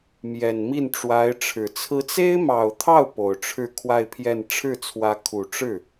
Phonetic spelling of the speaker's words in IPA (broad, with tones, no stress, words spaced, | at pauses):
mjɛ˨˩nmi˥˩nʈ͡ʂwa˧˥ɪ̯ʈ͡ʂʰɻ̩˨˩ t͡sʰɹ̩˧˥t͡se˥ɪ̯mɑ˨˩ʊ̯t̪ʰɑ˥˩ʊ̯ po˨˩ʊ̯ʈ͡ʂʰɻ̩˥˧ kʰwa˥˧ɪ̯pʰjɛ˥˧n ʈ͡ʂʰɻ̩˥˩t͡sʰwä˧˥ kʰu˨˩ʈ͡ʂɻ̩˥˩